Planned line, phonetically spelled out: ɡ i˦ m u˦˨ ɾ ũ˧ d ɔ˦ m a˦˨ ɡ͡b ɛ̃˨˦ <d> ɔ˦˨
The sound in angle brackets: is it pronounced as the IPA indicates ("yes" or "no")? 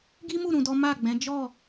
no